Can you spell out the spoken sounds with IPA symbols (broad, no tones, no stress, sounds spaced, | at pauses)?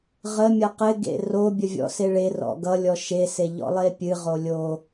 ʁ ə mʲ ʌ q ɪ ɡ ḛ r o bʲ ə vʲ ɔ̰ s e ɭ e r ɔ̰ ɡ ʌ lʲ ɔ ʃ e s e ʎ ɔ̰ lˠ e pʲ ɨ ʁ o lʲ o